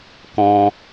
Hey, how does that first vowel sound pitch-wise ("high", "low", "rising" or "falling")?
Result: high